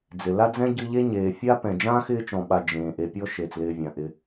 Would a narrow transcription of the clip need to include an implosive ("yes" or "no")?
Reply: yes